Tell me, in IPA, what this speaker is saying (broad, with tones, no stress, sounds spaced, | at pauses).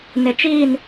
n ɪ˨ t͡ʃ iː˦˨ n